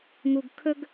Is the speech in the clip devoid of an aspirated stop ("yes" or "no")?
no